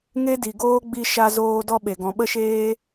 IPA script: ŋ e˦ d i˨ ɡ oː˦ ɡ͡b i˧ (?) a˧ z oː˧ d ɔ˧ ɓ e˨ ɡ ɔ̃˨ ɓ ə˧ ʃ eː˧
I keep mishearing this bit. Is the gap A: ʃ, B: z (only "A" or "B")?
A